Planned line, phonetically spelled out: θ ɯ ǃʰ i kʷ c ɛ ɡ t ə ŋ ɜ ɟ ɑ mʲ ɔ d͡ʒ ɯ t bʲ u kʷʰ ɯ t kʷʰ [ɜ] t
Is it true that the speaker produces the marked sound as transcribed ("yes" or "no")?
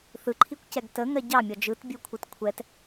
no